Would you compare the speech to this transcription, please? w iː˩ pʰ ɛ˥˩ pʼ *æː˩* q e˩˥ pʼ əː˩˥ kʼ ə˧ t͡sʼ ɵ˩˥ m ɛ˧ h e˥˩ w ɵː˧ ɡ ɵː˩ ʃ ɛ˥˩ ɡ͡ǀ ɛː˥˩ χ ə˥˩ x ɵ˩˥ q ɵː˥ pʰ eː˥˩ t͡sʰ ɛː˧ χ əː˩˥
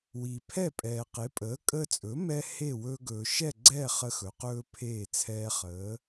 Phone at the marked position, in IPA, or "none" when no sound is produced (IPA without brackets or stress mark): ɛː˩